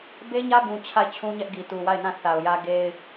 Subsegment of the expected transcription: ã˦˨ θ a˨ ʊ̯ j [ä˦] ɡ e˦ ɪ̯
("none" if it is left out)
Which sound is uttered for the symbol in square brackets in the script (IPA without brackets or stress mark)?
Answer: ä˦